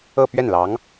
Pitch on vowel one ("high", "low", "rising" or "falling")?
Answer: falling